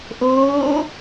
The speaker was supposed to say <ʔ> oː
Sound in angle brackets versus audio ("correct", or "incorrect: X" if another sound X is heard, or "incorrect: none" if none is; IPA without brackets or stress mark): correct